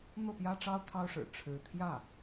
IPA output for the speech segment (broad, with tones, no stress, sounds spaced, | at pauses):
n̪ ɤ˥˩ p j ä˥ ʈ͡ʂ ɑ˥ ʊ̯ t̪ʰ ɑ˥ ʊ̯ ʂ ɻ̩˨˩ ʈ͡ʂʰ ɻ̩˧˥ t̪ʰ j ä˥˩